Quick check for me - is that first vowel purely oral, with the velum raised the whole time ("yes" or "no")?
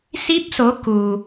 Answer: yes